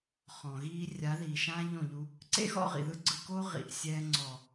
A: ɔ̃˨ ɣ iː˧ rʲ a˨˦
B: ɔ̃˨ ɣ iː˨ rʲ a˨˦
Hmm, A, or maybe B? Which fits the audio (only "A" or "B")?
A